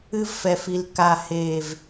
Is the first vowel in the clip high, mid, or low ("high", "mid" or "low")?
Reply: high